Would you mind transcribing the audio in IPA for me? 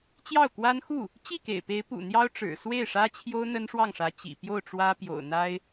t͡ɕjɑ˥˩ʊ̯kwa˥n xu˥˩ | t͡ɕi˥˩kḛ˨˩ɪ̯ pe˧˥ɪ̯pṵ˨˩ n̪jɑ˥ʊ̯ʈ͡ʂɻ̩˨˩ swe˥˩ɪ̯ʂä˥t͡ɕʰjo˥ʊ̯ n̪ə˥nʂwɑ˥˩ŋʂä˧˥ t͡ɕḭ˨˩ pjo˥˩ʊ̯ʈ͡ʂwä˥pjo̰˨˩ʊ̯ n̪a˥ɪ̯

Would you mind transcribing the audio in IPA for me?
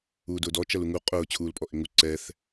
uːdʊːdɔ t͡ʃɐluŋu qʼʊː t͡ɕʰuːlpʼɔʔɪŋu ǀɛθ

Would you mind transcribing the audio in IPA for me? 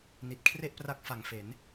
ni˨˩t̚kʰre˥˩ʔpra˦˥k̚ fa˨˩ŋfe˩˦n

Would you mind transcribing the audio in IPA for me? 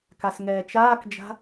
kasŋɛːt͡ʃaːkd͡ʒa̤

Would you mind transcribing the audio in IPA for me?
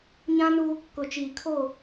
ɲã˦nu˦ | kʊ˨t͡ʃiː˨ kʰo˦˨

